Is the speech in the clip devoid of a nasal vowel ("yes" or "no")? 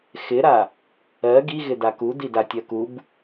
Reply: yes